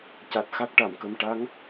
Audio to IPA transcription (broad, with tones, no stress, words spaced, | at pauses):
ca˨˩t̚ xa˦˥k̚ʈa˨˩˨mkə˧m ʈa˧˥ŋ